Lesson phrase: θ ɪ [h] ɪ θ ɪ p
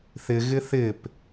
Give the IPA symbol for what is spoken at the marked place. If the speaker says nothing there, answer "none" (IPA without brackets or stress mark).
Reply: ɣ